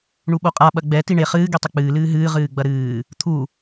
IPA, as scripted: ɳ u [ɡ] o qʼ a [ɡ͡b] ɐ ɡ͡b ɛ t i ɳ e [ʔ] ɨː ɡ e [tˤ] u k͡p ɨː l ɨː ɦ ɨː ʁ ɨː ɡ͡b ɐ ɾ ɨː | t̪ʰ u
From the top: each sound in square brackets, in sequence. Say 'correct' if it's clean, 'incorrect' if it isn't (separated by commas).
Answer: incorrect, incorrect, incorrect, correct